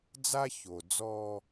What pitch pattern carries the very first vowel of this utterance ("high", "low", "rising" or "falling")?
high